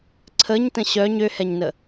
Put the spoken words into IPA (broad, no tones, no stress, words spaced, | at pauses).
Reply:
ǀʰəɲtə̃ ɕœɲ øhɛɲnə